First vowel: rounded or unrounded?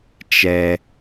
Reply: unrounded